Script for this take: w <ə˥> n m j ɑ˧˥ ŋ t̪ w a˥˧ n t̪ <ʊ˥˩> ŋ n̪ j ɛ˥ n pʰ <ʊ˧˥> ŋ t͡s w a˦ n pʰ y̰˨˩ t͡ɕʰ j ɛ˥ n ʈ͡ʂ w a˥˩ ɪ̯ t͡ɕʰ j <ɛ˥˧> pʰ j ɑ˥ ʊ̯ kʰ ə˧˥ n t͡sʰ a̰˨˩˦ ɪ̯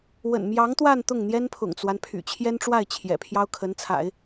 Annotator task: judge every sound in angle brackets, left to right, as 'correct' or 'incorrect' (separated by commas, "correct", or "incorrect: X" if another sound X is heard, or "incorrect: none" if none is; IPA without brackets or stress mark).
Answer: incorrect: ə̰˨˩, correct, incorrect: ʊ̰˨˩, incorrect: ɛ̰˨˩